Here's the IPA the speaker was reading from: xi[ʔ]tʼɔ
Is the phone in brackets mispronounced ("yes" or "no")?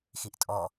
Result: no